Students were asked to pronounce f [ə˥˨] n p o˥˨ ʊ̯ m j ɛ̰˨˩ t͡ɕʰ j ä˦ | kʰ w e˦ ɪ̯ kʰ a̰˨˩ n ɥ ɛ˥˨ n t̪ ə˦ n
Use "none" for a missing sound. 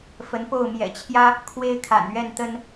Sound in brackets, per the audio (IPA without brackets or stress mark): ə˨˦